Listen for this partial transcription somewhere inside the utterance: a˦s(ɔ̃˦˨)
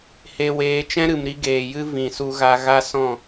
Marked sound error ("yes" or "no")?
no